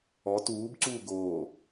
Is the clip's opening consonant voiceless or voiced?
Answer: voiceless